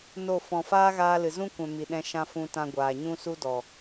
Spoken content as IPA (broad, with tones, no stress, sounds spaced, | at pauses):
n o˦˨ f ɔ̃˨ f aː˦ ɣ aː˧ l ɨ˨ z ũ˦ kʷ ɛ̃˨ m i˨ ɗ ɛ̃˧ ʃ ã˧ f ũ˧ t ã˧ ɡʷ aː˨ ɲ ũ˦ s u˦ d ɔ˨